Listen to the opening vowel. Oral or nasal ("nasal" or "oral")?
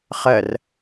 oral